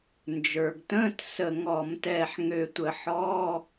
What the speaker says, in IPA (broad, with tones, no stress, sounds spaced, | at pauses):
n d͡ʒ ə˞˩ ɡ t ə̃ː˧˥˧ t s ə˧˩ ŋ ɔ˧˩˧ m t ɛː˧˩ ħ ŋ ø˧˩ tʷ ə˧˩˧ ħ ɔː˧˥˧